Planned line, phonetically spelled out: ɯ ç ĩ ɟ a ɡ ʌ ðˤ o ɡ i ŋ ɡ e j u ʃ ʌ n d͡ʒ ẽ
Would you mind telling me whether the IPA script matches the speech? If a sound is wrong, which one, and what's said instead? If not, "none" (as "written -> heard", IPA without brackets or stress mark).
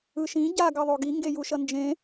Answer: ç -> ʃ